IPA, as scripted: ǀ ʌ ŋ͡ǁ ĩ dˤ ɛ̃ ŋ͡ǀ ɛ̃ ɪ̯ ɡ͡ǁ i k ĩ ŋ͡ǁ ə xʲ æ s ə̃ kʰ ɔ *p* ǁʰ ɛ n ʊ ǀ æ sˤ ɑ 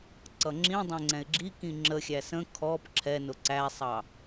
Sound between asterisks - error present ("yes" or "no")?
no